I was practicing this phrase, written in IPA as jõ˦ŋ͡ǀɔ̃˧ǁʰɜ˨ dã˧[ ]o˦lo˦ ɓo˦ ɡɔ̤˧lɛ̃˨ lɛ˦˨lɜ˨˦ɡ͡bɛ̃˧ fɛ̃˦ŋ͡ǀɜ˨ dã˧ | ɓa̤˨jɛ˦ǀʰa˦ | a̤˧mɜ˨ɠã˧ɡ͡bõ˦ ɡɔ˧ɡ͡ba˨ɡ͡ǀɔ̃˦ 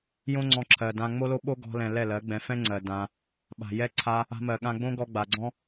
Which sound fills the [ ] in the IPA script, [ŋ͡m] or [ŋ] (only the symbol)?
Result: ŋ͡m